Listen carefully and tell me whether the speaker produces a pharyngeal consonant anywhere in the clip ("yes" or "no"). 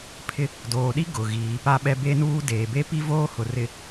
no